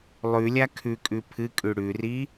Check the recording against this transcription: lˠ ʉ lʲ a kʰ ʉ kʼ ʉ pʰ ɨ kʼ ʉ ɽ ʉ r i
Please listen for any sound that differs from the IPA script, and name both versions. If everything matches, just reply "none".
none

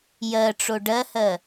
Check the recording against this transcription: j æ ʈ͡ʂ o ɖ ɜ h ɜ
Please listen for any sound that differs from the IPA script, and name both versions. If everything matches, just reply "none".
æ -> ɜ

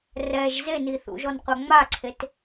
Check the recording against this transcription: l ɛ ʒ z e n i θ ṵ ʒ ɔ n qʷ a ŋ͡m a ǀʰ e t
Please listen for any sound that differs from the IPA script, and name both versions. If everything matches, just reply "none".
l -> r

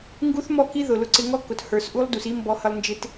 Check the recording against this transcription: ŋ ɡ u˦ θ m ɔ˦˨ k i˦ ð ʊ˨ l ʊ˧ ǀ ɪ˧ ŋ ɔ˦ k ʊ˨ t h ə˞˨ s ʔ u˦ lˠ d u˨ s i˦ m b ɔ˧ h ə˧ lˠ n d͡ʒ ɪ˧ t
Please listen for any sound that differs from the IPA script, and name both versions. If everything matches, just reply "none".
none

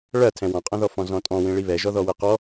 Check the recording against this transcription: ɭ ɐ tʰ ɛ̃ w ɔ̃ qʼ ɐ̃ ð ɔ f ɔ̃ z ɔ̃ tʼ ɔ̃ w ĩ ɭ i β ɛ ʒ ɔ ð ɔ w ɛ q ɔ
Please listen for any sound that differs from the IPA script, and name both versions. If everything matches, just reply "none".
none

